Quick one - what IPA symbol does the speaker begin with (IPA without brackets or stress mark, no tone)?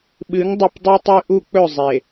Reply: ɓ